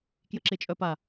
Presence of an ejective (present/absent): present